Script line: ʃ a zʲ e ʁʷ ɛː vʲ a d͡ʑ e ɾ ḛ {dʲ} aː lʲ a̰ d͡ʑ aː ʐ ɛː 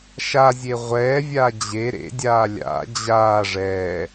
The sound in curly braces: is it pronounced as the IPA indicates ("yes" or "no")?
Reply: yes